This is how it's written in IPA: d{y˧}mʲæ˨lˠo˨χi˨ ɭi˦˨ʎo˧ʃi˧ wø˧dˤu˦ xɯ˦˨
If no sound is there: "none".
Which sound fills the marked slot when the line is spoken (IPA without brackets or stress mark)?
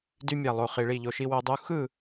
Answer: y˧